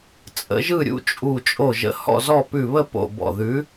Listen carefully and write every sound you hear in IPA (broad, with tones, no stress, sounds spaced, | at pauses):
t͡sʼ ə̰˨˥ ʒ ɯ˥˨ ɾʲ ṵ˥˨ t͡ʃʼ u˧˩ t͡ʃʼ o˧˩ ʒ ə̰˨˥ h ɔ̰˥˨ z ɔ˥˨ p ʉ˧˩ β ə˥˨ p o̰˧˩ b ɔ̰˧˩ ð ʉ˨˥